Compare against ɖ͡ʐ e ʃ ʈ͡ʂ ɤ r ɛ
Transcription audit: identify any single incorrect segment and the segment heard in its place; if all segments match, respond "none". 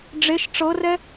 none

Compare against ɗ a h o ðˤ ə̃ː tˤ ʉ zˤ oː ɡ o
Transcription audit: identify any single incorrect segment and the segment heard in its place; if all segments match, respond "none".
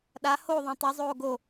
none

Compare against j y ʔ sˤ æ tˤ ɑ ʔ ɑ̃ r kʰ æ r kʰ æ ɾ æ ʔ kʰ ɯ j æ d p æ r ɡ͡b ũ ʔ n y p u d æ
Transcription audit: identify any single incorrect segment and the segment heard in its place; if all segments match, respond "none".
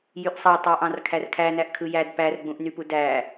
ɾ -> n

